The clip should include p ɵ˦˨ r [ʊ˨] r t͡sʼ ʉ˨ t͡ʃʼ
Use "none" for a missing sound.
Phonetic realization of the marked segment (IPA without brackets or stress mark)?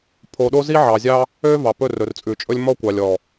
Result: ɵ˨